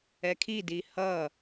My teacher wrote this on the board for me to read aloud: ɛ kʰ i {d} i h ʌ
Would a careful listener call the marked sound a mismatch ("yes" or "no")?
no